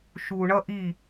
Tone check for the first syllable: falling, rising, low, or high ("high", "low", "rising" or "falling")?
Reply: low